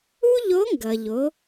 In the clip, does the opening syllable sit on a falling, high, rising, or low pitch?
high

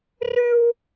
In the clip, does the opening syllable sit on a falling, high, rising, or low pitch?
high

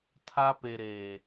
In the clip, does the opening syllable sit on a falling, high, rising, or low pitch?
high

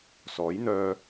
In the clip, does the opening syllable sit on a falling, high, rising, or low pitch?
rising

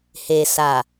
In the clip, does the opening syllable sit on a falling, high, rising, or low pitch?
low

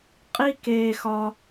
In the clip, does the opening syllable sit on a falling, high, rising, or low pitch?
high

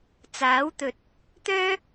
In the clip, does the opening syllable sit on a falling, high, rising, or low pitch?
rising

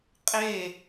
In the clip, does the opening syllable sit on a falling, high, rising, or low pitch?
falling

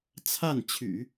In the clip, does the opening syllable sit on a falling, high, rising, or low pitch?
falling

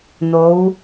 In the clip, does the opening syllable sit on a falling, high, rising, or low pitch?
rising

